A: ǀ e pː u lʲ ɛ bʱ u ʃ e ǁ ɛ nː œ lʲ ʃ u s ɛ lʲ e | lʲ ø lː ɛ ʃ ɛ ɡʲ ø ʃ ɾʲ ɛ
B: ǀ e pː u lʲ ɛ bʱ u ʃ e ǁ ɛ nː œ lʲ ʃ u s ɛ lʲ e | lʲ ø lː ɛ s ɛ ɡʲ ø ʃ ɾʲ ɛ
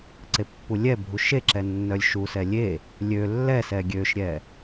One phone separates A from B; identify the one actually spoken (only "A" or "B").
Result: B